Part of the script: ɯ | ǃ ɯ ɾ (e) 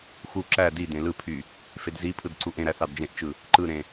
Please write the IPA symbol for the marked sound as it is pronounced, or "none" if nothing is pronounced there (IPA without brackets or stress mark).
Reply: ẽ